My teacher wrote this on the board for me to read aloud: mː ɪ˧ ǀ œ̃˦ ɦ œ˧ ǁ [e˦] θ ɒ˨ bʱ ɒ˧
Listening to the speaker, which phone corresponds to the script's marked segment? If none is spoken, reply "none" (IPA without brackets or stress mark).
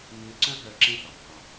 ẽ˦